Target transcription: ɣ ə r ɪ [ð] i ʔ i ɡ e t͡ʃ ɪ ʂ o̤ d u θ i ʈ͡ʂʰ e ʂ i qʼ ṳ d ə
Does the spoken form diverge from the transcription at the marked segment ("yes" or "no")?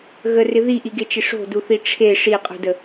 no